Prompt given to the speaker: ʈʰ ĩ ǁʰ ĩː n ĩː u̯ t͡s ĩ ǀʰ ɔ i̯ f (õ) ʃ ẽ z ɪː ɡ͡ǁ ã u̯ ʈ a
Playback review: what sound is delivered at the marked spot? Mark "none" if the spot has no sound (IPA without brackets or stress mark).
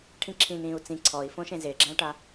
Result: õ